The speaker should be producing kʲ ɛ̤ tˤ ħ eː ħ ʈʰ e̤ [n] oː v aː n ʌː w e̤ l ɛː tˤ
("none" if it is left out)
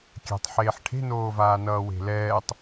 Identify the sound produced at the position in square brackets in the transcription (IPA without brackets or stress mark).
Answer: n